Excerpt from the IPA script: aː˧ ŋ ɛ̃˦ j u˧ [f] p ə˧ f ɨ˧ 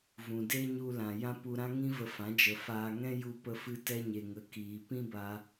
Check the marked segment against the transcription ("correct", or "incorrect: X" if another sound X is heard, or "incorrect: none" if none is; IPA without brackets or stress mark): incorrect: none